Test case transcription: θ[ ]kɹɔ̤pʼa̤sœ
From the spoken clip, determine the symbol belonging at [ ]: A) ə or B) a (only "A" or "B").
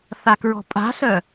B